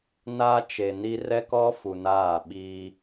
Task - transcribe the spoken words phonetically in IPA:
na˦t͡ʃe˨ni˦ rɛ˦kɔ˦ fu˨naː˦˨ ɓiː˦

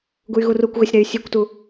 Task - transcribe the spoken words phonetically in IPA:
ɡuy̯ɣurukʷɣɛsʲ ɾɛy̯sʲekʷtu

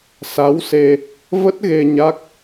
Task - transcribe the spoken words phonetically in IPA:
sa˨˦wse˧ | və˦˥t̚ɣe˧ ɲa˦˥k̚

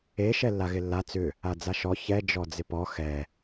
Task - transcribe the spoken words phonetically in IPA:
e ʃɛlːaɣɪlːa t͡sʏ | ad͡zaʃɔ çɛ d͡ʒɔd͡zɪpɔ xɛ

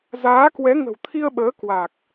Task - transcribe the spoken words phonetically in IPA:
zaː˨˦kwɛ˨˦ ŋə̤˨˩wt̪ʰi˧ə̯ɓəː˨˦ kwa˨˩k̚

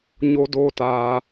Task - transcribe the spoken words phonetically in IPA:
ɲo˦doː˦taː˧

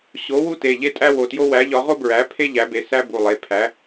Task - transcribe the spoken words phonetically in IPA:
ɕo˨˥ wu˥te˩˧˩ ʎe˥ tʼæ˥wo˩˧˩tjo˥ wæ˨˥ʎɒ˨˥ ʁo˥bɹæ˨˥pʰe˥ ʎæ˨˥be˩˧˩sæ˥ bu˩˧˩lˠe˩˧˩pʰæ˨˥

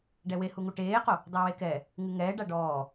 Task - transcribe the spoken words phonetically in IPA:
ɖɛwehuŋu ʈeːqo | dˤowekɛ | ŋɨŋɛː ɖaɖɔː

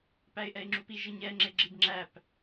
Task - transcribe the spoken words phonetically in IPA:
pæɪ̯ʔɛɪ̯ŋ͡ǁupiʒ əɲɛ ŋ͡ǁeɡ͡ǁibŋ͡ǁæp

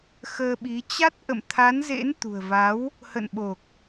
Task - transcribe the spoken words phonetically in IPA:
xəː˧ɓi˨˦ t͡ɕa˦˥t̚ʔə̰˧˨mt̪ʰa˨˦nzḛ˧˥n t̪ṳ˨˩ə̯va˨˦w | hə̰˧˨nɓo˨˩k̚

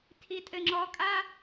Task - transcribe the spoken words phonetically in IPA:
tʰitʼɘŋ͡ǁɔkʼa

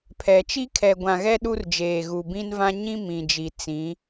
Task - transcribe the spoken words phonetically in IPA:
pʰɛ˨ t͡ʃi˦kʰɛ˨ɡʷã˨ɣɛ˦ ɗu˦rd͡ʒeː˨ɣu˨ bĩ˦nvã˦ ɲĩ˦ mĩ˨d͡ʒi˨ t͡sĩ˨˦

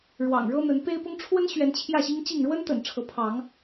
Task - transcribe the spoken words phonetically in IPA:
ɻwɑ̰˨˩ŋɻɤ˦n̪ə˨˦n pe˦ɪ̯pʊ˦ŋ ʈ͡ʂʰwə˦nɕɥɛ˨˦n t͡ɕʰjä˥˨ɕi˦ŋt͡ɕi˥˨ŋ ɻwə˦nt̪ə̰˨˩n ʈ͡ʂʰɤ˨˦pʰɑ˨˦ŋ

